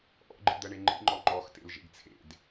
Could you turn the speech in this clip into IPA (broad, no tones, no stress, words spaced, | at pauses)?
ʔɔ̰ɡ͡ǃḭd̪ɜɳe ŋ͡ǃḭŋ͡ǃɔ ŋ͡ǃɔxtḛl ʒḛɡt͡sʰḛd